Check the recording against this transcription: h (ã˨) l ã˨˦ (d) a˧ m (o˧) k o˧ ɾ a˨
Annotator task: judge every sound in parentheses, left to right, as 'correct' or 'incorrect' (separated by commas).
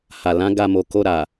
incorrect, incorrect, incorrect